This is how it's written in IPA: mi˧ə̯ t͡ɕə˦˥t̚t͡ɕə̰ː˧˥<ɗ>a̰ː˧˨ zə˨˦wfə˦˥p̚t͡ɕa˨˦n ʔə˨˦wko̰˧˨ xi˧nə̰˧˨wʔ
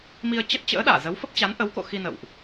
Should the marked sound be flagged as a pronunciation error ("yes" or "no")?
no